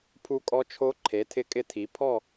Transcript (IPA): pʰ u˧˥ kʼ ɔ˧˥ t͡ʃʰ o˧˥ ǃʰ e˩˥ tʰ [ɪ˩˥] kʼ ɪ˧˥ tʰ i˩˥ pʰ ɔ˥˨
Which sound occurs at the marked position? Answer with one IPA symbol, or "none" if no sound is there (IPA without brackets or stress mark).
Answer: ɪ˧˥